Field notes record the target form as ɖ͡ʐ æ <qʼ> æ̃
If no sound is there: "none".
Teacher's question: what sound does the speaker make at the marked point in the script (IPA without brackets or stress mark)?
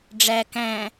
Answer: k